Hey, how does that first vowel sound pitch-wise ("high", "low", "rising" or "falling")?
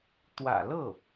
low